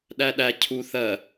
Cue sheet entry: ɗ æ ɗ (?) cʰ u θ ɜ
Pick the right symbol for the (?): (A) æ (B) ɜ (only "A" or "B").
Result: A